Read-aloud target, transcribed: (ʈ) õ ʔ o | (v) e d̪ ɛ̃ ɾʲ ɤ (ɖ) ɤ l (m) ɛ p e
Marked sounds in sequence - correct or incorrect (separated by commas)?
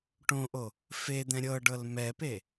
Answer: correct, incorrect, correct, correct